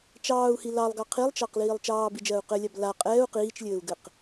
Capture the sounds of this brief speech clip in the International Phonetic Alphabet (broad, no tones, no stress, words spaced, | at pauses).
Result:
t͡ʃɑːu̯hi lɑlˠɡɑ qʰilˠt͡ʃɑqliːlˠ t͡ʃɑːbid͡ʒɜːu̯ qɘlʲab la qʼɛːu̯ qiːt͡ʃlʲɘːu̯ɡɘq